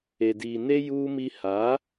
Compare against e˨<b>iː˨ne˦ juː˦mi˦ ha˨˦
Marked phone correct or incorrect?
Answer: incorrect: d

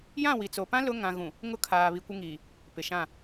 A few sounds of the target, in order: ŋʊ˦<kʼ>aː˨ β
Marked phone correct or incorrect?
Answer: incorrect: kʰ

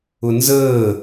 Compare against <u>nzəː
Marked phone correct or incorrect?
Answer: incorrect: ʊ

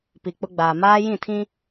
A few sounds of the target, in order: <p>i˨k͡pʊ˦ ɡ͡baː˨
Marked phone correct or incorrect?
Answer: correct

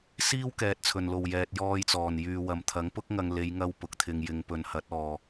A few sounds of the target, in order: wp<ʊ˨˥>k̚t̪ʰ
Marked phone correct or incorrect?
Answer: correct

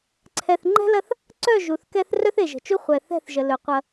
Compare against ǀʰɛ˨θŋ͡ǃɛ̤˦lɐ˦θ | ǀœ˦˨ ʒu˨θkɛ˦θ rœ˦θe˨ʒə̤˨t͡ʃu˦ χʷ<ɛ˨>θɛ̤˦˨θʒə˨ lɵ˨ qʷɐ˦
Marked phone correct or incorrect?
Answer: correct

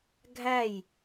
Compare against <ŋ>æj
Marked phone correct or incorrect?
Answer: incorrect: ɡʱ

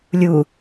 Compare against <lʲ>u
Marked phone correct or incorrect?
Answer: correct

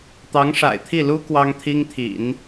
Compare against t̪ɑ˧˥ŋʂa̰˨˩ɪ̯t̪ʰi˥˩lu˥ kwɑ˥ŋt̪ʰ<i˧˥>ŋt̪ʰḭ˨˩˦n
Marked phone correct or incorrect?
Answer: incorrect: i˥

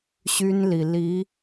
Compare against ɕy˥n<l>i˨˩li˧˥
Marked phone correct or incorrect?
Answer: correct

